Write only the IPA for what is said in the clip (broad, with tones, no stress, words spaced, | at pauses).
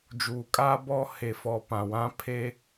d͡ʒuː˨kʼaː˦bɔ˦ he˨fɔ˨ pã˨wã˦pʰe˦